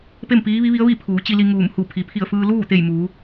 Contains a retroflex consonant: no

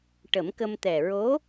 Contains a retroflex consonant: yes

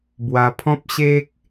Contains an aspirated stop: yes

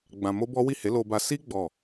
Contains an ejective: no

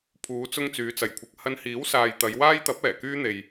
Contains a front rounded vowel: yes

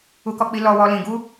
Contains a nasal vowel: yes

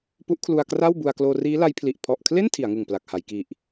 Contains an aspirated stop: yes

